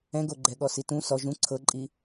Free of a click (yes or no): no